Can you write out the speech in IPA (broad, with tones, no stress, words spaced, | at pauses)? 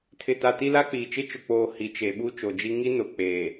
tʰɪ˨ta˨ ti˦la˦k͡piː˨ t͡ʃɪ˦t͡ʃʊ˨k͡poː˨ hi˨t͡ʃe˨ ɓu˦t͡ʃo˨d͡ʒi˦ ŋi˦ nʊ˨k͡pe˨